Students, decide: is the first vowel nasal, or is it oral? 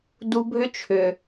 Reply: oral